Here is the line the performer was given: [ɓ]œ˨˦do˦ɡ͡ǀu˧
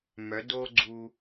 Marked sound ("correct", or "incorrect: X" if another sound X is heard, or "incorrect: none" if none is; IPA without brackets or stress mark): incorrect: m